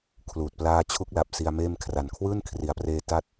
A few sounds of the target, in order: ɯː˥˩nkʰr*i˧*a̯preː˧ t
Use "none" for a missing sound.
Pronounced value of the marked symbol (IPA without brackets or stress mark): i˩˦